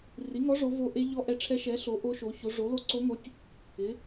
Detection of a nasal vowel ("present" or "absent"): absent